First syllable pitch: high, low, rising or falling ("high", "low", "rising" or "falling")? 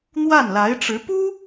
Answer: falling